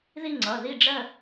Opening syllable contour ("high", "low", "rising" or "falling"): falling